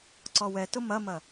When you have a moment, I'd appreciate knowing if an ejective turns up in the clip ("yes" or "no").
no